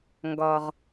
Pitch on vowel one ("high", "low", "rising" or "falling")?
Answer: low